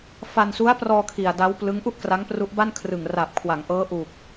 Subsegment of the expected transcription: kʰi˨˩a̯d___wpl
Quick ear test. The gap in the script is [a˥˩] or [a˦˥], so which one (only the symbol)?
a˦˥